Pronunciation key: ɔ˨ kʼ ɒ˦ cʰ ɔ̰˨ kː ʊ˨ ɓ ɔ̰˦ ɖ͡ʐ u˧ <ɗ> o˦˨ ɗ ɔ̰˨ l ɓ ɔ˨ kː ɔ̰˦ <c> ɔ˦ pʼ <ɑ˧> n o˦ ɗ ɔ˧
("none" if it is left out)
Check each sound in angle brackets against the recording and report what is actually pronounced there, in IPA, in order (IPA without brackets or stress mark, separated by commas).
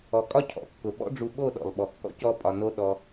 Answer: ɓ, c, ɒ˧